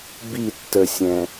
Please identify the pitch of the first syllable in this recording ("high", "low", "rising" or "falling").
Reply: falling